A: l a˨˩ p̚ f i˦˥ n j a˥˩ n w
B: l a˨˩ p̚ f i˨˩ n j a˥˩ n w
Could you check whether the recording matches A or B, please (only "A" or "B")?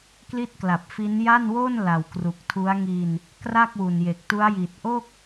A